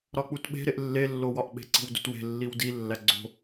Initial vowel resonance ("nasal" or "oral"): oral